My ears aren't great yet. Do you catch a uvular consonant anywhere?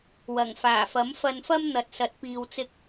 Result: no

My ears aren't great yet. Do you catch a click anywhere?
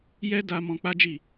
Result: no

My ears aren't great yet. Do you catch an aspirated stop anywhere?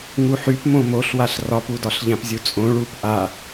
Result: no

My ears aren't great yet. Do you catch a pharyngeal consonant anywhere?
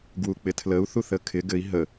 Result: no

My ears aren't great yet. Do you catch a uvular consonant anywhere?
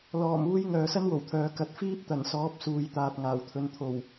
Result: no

